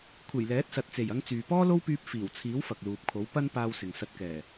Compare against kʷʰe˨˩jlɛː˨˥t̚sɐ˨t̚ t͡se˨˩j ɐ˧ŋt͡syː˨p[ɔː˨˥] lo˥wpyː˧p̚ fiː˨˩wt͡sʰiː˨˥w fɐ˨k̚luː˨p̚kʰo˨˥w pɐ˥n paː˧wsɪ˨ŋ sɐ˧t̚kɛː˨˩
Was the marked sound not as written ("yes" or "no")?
yes